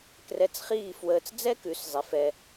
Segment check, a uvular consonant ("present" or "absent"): present